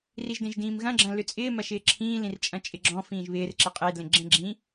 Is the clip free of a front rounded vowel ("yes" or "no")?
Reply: no